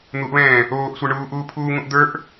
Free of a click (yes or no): yes